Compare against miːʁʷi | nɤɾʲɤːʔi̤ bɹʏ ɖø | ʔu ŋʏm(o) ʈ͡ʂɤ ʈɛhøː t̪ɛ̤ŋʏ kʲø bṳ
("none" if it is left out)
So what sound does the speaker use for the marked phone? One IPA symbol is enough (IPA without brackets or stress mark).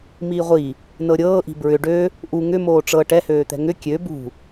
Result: oː